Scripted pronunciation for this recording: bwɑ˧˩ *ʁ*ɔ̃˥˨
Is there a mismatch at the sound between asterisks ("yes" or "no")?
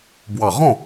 no